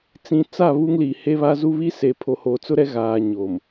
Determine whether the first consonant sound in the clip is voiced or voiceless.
voiceless